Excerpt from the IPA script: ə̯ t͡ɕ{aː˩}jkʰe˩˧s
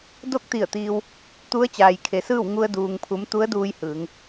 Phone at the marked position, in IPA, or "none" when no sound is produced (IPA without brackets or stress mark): aː˩